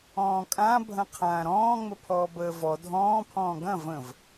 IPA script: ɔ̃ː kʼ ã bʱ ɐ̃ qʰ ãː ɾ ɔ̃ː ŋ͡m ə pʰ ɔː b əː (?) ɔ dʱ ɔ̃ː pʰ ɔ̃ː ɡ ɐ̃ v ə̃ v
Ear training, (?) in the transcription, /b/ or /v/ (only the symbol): v